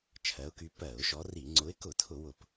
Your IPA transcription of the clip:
t͡ʃʰ ɜ˨˦ ʊ̯ k y˨˦ p ɜ˧˩˧ ʊ̯ ʃ ɔ˨˦ r i˧˩˧ ŋ͡ǀ ʊ˨˦ ɪ̯ k ʊ˧˩˧ tʰ ʊ˧˩˧ w ʊ˧˩˧ p

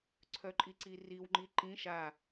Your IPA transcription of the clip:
ǀʰ œ ǃʼ i ǀ i r i w ŋ͡ǃ i ǃ ĩ ʃ a

